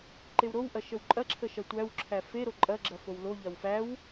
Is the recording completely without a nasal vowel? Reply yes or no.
yes